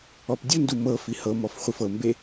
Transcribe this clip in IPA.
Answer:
ɔ p dʲ u n d u m ɤ f i h ɤ m ɔ f χʷ i f ɤ m b e

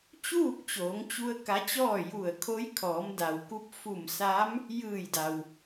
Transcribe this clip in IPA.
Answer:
t͡ɕ uː˥˨ k̚ t͡ɕ oː˩˧ ŋ t͡ɕ u˧ ə̯ k a˧˥ t͡ɕ ɔː˥˨ j u˧˩ ə̯ kʰ o˧˥ j kʰ ɔː˩˧ m d a˩ w k u˧ p̚ f u˧˩ m s a˧˥ m | j ɯː˧˩ j d a˩ w

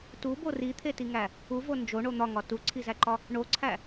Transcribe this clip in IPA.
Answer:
t u b o r i t̪ʰ e t i ŋ æ | u v o n d͡ʒ o ɳ o n̪ ɒ ŋ ɒ t u ǀʰ i z æ ǃ ɒ | ɳ o ǀʰ æ

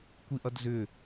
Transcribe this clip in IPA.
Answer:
kʷ i ʔ ʌ d z ʏ

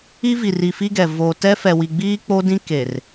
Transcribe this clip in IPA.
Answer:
i˦ v i˨ r i˨ f i˦ ɡ ɛ˨ v o˨ t ɛ˦ f ɛ˨ w i˨ ɡ͡b iː˦ k͡p o˦ d ĩ˦ k e˨ r

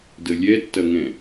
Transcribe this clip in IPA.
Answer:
d ə lʲ ɛ tː ɐ ŋ ɛ̃

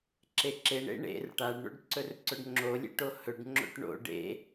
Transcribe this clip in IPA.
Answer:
ǁ e ǁ e ɳ ḛ ɳ ḛ r ʈ a ɖ ɳ o̰ ɖ ǀ ɵ r ǀ ɵ ɖ ŋ͡ǁ o lʲ ḛ ʈ o h ɵ ɖ ŋ͡ǁ o̰ ʈ ɳ o̰ ɖ ḛ

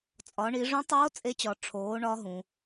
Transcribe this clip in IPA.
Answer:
t͡sʼ ɒ˩˧ ɳ i˩˧ ʐ ũ˧˥ tˤ oː˧˥ t͡sʼ e˧˥ t͡ɕ ɒ˩˧ ʈ͡ʂʰ oː˩˧ ɳ ɒ˧˥ ɦ ũ˩˧

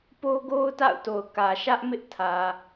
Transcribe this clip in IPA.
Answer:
p o˦ ɡ o˦ ʊ̯ t a̰˦˨ ʊ̯ t o˨ ʊ̯ k ä˨ ʃ ä˦ ʔ m ɪ˦ ʔ tʰ ä˨

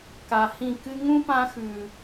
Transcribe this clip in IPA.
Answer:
k a˨ h ĩ˦˨ k ɨ˦ ŋ ũ˦ p ã˦ x ʉ˨

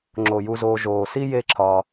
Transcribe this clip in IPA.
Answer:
ŋ͡ǁ o˩ j u˨ z oː˨ ʒ oː˩ s i˥ j e˦ ǁʰ ɒː˨

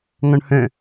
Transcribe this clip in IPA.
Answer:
ŋ ɔ̃ ɳ h œ̃

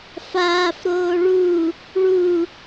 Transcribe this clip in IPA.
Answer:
f aː f ɾ oː ɭ u | ɭ u

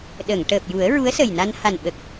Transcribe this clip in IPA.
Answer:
ɗ ə˨˩˨ ŋ ʈ əː˨˩ p̚ j u˨˩˦ ə̯ ɹ u˧˥ ə̯ s ə˨˩ j n a˧ n h a˨˩ n ɓ ə˨˩ k̚

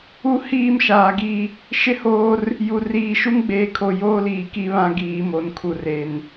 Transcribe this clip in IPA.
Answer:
u˦ h iː˦˨ m ʃ aː˨ ɡ i˦˨ | ʃ ɪ˦ h oː˦ r | j u˨ r iː˨ ʃ u˦ ŋ ɡ͡b eː˨ kʰ o˨ j oː˦ l iː˨ k i˦ β ã˦ ɡ iː˨ m o˨ n kʰ u˨ r e˨ n

